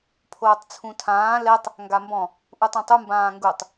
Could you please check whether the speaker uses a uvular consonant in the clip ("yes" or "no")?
no